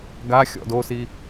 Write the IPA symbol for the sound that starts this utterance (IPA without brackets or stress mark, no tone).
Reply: ɡ